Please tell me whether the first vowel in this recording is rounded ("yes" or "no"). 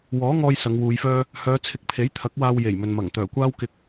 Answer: yes